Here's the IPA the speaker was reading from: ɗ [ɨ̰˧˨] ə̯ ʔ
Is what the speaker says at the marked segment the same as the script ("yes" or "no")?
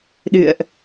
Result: yes